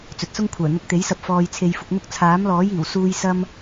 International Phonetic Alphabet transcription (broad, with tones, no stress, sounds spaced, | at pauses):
t͡s ɵ˨ t̚ s ʊ˥ ŋ kʷʰ œː˨˩ n̪ ʊ˧ k̚ t̪ e˨˥ j s ɐ˧ p̚ f ɔː˧ j t͡sʰ e˧ j f ʊ˧ k̚ n̪ ʊ˥ k̚ t͡sʰ aː˨˥ m l ɔː˨˥ j iː˨˩ w s uː˥ j s ɐ˥ m